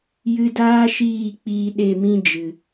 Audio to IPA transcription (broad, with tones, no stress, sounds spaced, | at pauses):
j ɨ˧ d aː˦ ʃ iː˦˨ k͡p iː˧ ɗ e˦˨ m ĩ˦ d͡ʒ ɨ˨